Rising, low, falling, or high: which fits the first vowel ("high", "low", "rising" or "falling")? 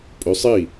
rising